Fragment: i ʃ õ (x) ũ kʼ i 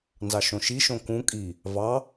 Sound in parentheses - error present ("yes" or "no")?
yes